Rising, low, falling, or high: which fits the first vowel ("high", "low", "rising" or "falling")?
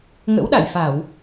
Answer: rising